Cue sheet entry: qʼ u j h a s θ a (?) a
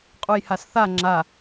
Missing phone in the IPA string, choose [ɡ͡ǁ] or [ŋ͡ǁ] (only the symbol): ŋ͡ǁ